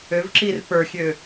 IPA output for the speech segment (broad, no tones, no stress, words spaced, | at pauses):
øvǁir pə˞xʲø